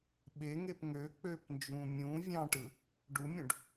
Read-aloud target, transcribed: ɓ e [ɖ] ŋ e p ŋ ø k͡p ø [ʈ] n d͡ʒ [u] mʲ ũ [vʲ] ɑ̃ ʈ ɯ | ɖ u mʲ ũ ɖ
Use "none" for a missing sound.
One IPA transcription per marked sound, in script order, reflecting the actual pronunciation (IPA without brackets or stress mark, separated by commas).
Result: none, p, ũ, vʲ